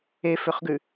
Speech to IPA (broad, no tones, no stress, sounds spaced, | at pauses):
e f ø χ ɡ ʉ